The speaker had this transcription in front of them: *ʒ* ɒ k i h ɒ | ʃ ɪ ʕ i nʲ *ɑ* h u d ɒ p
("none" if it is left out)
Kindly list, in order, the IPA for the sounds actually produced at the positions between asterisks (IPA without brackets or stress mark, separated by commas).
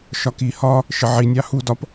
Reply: ʃ, ɑ